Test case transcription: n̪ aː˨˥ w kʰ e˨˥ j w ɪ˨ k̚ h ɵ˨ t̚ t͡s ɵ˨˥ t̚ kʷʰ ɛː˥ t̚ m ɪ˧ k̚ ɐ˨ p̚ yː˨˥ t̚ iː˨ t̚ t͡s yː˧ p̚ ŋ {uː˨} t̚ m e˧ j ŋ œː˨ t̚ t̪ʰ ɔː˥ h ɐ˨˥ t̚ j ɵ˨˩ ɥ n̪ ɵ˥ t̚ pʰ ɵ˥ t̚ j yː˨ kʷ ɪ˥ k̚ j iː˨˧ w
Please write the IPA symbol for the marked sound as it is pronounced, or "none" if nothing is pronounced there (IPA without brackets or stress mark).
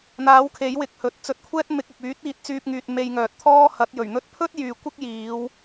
yː˨